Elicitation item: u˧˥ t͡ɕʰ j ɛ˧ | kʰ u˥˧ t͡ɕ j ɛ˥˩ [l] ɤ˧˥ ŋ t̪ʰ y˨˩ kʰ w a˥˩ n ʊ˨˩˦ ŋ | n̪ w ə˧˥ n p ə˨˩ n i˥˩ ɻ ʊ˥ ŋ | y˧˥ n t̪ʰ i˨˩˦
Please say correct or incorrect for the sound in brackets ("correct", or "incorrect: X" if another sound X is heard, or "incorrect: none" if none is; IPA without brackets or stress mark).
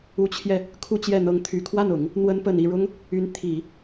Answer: incorrect: n̪